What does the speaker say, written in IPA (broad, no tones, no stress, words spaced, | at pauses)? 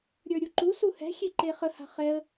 ɾʲə˞ɾʲuǃu suhɛ̤xʲe ǃeχə ha̤χɛə̯